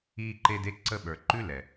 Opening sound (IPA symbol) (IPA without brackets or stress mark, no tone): iː